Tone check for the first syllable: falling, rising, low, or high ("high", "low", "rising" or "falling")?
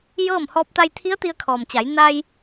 falling